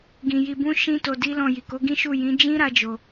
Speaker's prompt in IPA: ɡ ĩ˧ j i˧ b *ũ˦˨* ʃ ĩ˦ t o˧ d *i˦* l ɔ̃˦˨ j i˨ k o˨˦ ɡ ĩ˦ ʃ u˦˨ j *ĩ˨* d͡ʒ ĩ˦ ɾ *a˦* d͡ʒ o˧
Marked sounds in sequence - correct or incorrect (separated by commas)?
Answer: incorrect, correct, incorrect, correct